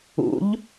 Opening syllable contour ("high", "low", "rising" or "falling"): rising